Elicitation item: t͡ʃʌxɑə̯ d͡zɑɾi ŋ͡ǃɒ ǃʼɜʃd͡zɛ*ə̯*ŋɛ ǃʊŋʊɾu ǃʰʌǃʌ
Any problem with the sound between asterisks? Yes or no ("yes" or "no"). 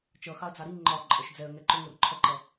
no